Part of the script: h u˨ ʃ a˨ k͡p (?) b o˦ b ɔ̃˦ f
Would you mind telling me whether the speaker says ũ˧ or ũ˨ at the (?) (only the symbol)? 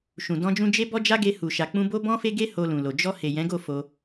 ũ˧